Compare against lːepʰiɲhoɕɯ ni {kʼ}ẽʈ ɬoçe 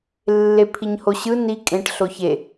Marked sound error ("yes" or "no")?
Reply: no